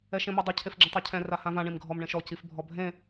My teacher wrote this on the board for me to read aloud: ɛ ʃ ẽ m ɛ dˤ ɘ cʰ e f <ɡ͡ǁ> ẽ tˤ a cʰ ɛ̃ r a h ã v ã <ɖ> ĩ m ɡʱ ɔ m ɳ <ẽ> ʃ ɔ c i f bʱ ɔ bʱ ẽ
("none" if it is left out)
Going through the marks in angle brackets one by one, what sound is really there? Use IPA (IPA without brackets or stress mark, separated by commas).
ɡ͡ǁ, ɳ, ẽ